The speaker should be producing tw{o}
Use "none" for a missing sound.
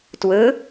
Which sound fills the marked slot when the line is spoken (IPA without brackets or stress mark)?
ɵ